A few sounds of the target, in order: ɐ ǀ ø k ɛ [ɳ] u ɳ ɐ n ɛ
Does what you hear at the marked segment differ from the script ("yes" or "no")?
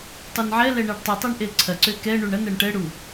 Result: no